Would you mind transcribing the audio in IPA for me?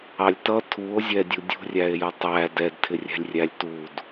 ɑ lʲ t ʌ tʰ u o̯ zʲ ɛ dʲ u dʲ ṳ rʲ æ e̯ j ʌ tˤ æ d ɛ d tʰ ɪ rʲ ɛ̤ lʲ rʲ æ lʲ t u d

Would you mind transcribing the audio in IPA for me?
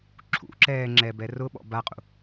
ǁʰ ṵ ǁ ɛː ŋ͡ǁ ɛ b ɛ r ʊ ɓ ɔ̰ b a qʼ ṵ

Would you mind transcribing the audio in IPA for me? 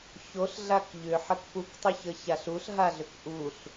ç o ɬ ɮ a k ʎ ʏ ħ ə k p u k tˤ ʏ ç ə ç a ɬ u ɬ ɦ a ɮ ʏ k ʔ u ɬ

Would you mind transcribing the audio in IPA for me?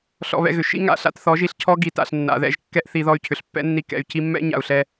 ɬ ɔ̰˧ β ɛ̰˧ ɣ ʏ˨ ʃ ḭ˦ ŋ a̰˨ ɬ a̰˦ t θ ɔ˨˦ ʒ i˧ ɬ cʰ ɔ˦ ɡ i˨ t a̰˨ ɬ nː a̰˨ ð ɛ̰˧ ʒ kː ɛ˦ ʔ θ i˧ ð ɔ˧ y̯ cʰ ʏ˨ ɬ pː ɛ̰˦ nː i˧ k ɛ̰˧ y̯ c i˧ mː ɛ̰˦ ɲ a̰˨ u̯ ɬ ɛ˧

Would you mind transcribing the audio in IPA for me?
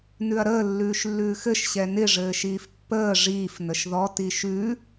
n ʉ ɐ̯ ɾ əː lː ʉː ʃ lː ʉː x ɘ ʃ ɕ ɛ n ɪ ʐ ɘː ʃ iː f pː əː ʐ iː f n ə ʃ ð ɔ t i ʃ ʉ

